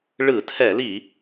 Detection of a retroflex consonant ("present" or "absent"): present